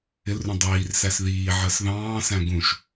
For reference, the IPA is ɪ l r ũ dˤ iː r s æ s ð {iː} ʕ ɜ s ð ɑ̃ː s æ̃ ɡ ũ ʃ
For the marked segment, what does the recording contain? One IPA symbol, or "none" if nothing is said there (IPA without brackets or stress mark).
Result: iː